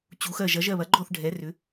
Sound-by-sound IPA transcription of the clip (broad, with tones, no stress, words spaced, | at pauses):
t͡ɕu˩˧xɜ˧˩ʒ ɐ˩˧ʒɜ˧˩βɐ˩˧ɡ͡ǃɔ˧˩θ ɖʱɛ˩˧rʏ˩˧